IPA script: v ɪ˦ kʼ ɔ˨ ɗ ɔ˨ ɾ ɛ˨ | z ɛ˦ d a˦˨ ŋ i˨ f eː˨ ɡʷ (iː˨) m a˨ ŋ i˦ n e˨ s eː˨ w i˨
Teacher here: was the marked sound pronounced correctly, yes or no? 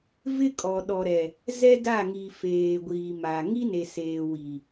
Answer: yes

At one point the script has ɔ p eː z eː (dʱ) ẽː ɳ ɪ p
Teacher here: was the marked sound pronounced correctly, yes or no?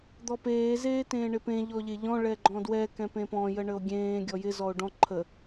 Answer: no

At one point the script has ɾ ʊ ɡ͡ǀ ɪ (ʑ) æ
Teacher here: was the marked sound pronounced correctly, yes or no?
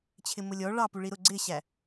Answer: no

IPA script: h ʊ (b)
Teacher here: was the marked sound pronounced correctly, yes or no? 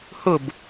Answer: yes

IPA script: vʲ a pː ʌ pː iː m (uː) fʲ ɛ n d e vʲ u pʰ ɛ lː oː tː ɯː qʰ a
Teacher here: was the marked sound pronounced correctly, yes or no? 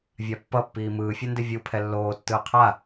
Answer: no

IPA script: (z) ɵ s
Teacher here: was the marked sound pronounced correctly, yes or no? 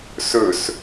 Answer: no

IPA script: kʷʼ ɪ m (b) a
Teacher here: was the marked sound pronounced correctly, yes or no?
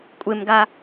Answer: no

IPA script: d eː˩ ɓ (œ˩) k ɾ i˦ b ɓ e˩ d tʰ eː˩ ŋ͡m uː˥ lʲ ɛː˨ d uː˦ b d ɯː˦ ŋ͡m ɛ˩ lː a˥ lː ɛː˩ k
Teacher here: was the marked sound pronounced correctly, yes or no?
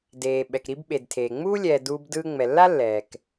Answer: no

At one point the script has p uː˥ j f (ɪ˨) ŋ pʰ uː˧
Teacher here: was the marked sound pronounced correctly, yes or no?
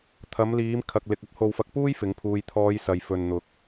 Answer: no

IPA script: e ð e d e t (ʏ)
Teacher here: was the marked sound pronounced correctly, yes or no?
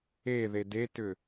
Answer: yes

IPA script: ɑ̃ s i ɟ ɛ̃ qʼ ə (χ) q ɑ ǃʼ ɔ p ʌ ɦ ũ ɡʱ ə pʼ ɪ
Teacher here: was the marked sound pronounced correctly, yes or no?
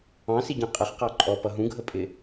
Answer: yes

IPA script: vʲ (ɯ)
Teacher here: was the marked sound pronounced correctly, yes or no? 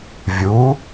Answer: no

